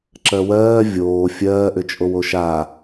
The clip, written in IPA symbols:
ǁɜwɜː vʲoː fʲɜːʔʏ t͡ʃʼowoʃa

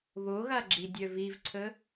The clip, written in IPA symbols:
βoɣaɡ͡ǁidʲœ vivǀʰə

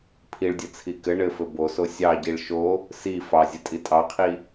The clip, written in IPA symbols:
pʰiɭdʲɘt͡sʰi kɘ ɳɘfɘ boso sʲɑɟiɭ ʃo | si fɑzʲɘtʼi tʼɑqʰi

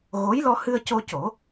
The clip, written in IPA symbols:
ɣo˧˥j lɔ˧hɨ˧ə̯co˧co˨˩˦

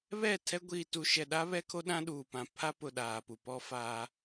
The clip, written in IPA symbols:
βɛ˦˨tʰɛ˦ ɡʷiː˨tu˨ʃɛ˨ ɗa˦βɛ˦kʰo˦ ɗã˦ɗuː˨pã˨ pʰa˦pʊ˨ ɗaː˨pu˨pɔ˦ faː˦

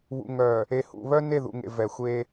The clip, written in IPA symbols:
βṵ˨ŋœ˨ | e˨hṵ˨βœ˦ ne˦˨ðṵ˨ŋḛ˨ vɛ˨xʷe˦

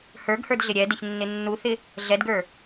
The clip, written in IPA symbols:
hə˞ɡhə˞dɮɪ ɾʲɛdɪçnːɪ nːuθɪ | ɮɛdɡə˞

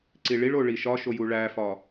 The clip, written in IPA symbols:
ǀiɭiɭo ɭiʃɒʃo juɭæfɒ

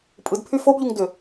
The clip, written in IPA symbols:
pʼɯdpʰy fobʎuŋdʏ

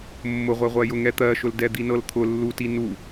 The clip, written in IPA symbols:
mːʊʁʷɛʁʷɜjʊ ŋɛt̪ɜʃʊl dɛd̪inɤlt̪ʰʊ lːuti nu

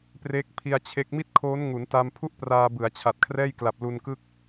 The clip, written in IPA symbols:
pre˦˥k̚pʰi˧a̯t͡ɕʰe˦˥k̚ mi˥˩t̚kʰoː˦˥n ŋu˩˦nta˧m pʰu˥˩ʔpraː˧bɯ˩˦a̯t͡ɕʰa˨˩t̚ kʰrɛː˥˩jkla˨˩p̚lu˧nkɯ˥˩k̚

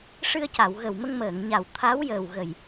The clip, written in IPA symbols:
ʂɨ˧ə̯ca˨˩˨w ɣə˨˩wmə˧ŋməː˨˩˨ŋɲa˨˩w t̪ʰa˧˥wjəː˨˩wɣə˨˩j

